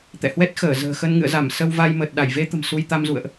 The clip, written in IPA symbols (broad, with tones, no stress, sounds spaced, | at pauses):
t̪ ɛ̰˧˨ h w ɛ˦˥ t̚ x əː˧˩ z ə̤ː˨˩ x ə˧ n ŋ ɨ̰˧˨ ə̯ z a˧˩ m s ə˧ w v a˧ j m ə˨˩ t̚ ɗ a˧˩ j v e˧ t̪ ə̤˨˩ m s u˧ j t̪ a˧ m z ṵ˧˨ ə̯ ʔ